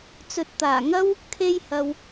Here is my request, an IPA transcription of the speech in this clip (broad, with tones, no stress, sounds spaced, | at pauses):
t͡s ɵ˨ t̚ t̪ aː˨˩ ŋ ɐ˥ w | kʰ e˧ j h ɐ˨ w